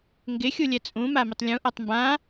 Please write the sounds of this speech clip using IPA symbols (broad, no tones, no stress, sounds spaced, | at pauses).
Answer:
ŋ ɡ ɪ xʲ u lʲ ɛ t͡sʼ ũ m a m ɪ tˤ lʲ ũ ʔ a tˤ m b ã